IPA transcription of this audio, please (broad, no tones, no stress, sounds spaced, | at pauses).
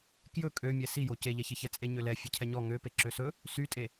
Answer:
k j ɵ kʼ ø mʲ ɛ s i j o c e ʎ ɛ ç e ç ɛ t͡sʼ e ɲ ø l ɛ fʲ e cʰ ɛ ɲ ɔ ŋ ø p e ǁ ø s ɵ | s y tʼ e